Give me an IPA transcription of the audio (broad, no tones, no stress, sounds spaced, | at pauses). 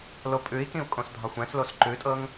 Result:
l o pʼ ʉ i̯ k ĩ u̯ kʼ õ s dʱ ɒ xʷ ɛ̃ s l o s ǃ ʉ tʼ ɤ ŋ